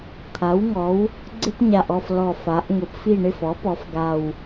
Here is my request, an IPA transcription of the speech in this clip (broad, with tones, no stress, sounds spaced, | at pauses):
t̪ʰ a˩˥ w ŋ ɔ˩˥ w | ɡ͡ǀ ɪ˥ p ɲ a˨˩ ʔ ɔ˥˨ f l ɔ˨˩ f a˩˧ ʔ ŋ ʊ˩˥ p f i˥˨ ɳ ɪ˥˨ f ɔ˩˥ p ɔ˩˧ f ɡ a˨˩ w